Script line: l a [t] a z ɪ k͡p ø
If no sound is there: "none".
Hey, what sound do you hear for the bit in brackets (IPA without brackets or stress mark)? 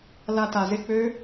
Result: t